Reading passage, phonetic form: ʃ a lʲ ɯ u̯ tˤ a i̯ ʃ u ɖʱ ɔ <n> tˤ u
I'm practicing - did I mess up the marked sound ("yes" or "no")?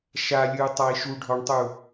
yes